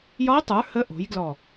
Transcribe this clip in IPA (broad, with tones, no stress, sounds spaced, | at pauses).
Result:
j ɒ˧˥ ʊ̯ tˤ ə˞˩˥ h ə˧˥ ʔ o̤˩˥ j ɡ l ɔ˧˩